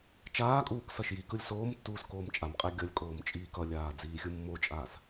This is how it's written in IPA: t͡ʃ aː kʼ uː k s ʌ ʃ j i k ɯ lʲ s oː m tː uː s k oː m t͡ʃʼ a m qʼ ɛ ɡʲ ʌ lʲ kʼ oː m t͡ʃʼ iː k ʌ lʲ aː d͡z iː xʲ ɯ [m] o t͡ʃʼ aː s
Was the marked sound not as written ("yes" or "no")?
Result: yes